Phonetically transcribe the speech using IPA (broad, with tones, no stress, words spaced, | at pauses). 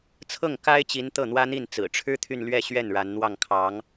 t͡sʰɤ˥˩ŋka˥ɪ̯t͡ɕi˧˥n t̪ɤ˥˩n̪wä˥n̪i˥˩n t͡sɹ̩˨˩ʈ͡ʂʰɻ̩˥ t̪ʰy˥˧nlɥɛ˥˧ɕɥɛ˥˩n ɻa˧˥nn̪wɑ˥˩ŋkʰɑ˧˥ŋ